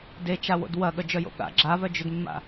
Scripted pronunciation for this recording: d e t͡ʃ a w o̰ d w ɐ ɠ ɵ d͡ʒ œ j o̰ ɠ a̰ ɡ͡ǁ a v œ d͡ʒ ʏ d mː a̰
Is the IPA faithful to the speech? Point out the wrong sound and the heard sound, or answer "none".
ɵ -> œ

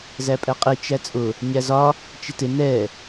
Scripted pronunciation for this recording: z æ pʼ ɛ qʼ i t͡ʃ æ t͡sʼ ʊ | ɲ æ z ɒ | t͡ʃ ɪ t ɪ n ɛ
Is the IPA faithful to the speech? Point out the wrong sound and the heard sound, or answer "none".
none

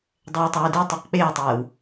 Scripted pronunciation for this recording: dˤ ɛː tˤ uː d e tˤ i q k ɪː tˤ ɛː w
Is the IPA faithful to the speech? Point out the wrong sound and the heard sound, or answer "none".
k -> k͡p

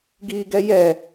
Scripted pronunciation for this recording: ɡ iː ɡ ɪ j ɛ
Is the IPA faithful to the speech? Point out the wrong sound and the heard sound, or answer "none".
ɪ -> ɛ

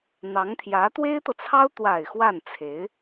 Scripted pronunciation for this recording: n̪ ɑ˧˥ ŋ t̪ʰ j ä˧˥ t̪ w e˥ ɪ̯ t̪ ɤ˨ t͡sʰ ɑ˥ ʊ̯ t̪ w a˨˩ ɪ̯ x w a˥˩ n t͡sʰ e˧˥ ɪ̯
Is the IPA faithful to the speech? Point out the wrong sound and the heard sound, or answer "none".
none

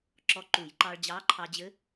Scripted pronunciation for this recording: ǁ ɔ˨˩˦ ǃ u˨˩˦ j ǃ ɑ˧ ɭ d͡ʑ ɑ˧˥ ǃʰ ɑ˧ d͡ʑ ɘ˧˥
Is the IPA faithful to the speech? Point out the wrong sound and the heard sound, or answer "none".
ɔ˨˩˦ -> ɔ˧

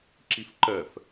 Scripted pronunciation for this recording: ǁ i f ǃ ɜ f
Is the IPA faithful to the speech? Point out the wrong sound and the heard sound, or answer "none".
none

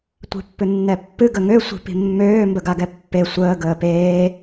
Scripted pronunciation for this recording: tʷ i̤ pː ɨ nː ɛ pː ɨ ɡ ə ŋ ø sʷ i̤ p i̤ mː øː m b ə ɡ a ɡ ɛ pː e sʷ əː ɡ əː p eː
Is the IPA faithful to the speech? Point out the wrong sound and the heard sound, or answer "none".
none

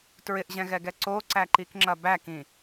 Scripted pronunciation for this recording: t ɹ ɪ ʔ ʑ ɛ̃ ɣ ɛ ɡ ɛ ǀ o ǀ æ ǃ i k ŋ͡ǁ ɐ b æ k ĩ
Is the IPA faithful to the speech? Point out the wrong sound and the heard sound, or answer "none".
none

